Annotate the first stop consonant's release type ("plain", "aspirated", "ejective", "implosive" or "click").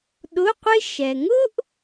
implosive